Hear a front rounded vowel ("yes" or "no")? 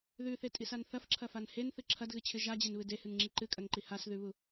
no